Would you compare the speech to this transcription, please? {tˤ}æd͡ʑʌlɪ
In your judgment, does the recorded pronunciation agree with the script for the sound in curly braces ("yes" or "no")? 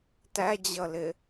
no